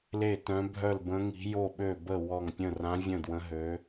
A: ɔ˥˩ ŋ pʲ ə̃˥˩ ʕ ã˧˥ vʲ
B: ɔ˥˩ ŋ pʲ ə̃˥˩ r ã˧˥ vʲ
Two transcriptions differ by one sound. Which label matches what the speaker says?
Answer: B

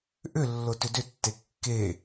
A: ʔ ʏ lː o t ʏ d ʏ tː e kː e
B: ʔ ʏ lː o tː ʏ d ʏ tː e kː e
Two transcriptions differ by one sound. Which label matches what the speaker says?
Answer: A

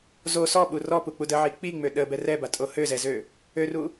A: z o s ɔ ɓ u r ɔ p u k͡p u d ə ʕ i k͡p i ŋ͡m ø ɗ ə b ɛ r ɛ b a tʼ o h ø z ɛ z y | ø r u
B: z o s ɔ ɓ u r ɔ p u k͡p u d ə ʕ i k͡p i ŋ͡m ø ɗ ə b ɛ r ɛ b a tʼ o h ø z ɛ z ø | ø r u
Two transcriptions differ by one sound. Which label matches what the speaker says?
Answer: B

